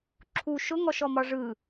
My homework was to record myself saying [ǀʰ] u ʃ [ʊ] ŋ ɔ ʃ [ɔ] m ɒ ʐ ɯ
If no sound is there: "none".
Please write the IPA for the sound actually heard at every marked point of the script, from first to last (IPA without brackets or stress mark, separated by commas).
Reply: ǁʰ, ʊ, ɔ